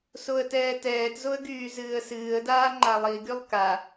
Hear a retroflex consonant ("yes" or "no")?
no